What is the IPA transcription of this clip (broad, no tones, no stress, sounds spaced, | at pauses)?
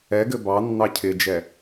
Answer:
ɛ ɡ ɘ b ɑ nː ɑ cʰ ɪ d͡ʒ ɛ